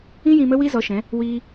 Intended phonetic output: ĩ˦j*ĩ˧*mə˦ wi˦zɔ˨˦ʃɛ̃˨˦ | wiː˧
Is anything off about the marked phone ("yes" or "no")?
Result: no